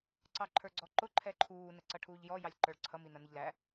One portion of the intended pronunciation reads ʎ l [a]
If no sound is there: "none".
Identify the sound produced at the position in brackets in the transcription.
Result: æ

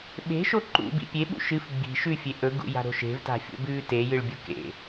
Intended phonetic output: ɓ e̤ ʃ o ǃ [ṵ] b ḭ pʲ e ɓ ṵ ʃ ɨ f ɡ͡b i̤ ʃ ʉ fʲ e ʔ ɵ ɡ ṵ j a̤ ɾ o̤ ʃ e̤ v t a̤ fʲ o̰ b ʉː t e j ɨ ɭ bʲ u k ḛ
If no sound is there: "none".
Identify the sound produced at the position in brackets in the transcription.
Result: ṵ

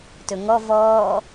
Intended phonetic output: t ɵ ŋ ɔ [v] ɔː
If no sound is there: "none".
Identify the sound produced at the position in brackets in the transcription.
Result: v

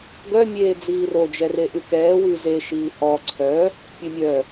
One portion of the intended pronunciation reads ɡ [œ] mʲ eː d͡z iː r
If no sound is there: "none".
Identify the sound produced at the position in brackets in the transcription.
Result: œ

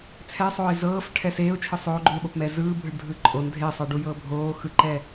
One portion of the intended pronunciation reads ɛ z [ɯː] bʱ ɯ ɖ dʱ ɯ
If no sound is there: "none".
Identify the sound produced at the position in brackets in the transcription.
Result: ɯː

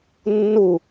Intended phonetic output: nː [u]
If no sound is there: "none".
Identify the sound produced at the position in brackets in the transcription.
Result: u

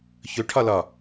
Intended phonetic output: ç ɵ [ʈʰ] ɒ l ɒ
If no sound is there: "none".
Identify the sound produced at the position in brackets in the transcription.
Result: ʈʰ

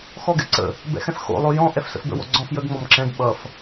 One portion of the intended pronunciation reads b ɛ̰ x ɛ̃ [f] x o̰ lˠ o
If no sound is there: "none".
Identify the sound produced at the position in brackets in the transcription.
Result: f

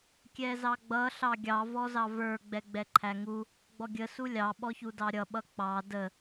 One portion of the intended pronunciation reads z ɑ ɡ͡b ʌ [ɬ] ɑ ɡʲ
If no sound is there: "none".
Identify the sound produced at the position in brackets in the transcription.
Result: ɬ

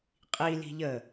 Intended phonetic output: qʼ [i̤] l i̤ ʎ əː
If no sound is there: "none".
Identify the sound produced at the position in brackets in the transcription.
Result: i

